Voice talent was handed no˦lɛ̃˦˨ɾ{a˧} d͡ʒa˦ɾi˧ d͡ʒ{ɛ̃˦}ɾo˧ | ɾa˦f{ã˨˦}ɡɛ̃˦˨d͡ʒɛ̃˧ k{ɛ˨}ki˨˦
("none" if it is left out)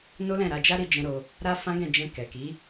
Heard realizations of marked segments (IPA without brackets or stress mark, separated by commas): a˧, ɛ̃˦, ã˦, ɛ˨